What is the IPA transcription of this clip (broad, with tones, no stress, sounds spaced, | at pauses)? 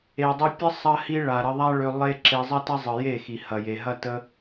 e˨ dˤ i˧ pʲ ə˦ sˤ ɐ˧ h i˧ ɭ a˨ ɾ ə˧ ðˤ a˦ ɭ ø˧ lˠ e˦ ǁ e˧ zˤ ɐ˦ t ɐ˦ zˤ ɯ˨ j e˦˨ x i˨ h ɐ˨ j e˨ ɦ ɐ˦ t ə˦